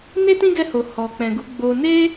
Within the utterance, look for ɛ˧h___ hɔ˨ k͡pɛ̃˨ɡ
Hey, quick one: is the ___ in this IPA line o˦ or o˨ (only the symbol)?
o˨